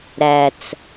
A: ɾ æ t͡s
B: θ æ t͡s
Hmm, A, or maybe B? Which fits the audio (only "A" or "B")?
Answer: A